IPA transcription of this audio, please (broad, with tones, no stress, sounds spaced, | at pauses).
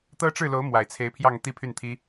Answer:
t̪ ɤ˥ ʈ͡ʂ ɻ̩˥˩ l o˧˥ ʊ̯ m w a˨˩ ɪ̯ t͡sʰ e˧˥ ɪ̯ pʰ j ɑ˥˧ ŋ t̪ i˥˧ pʰ y˥˩ n t̪ʰ i˥